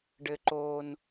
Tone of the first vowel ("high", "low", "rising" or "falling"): high